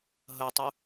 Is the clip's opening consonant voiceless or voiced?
voiced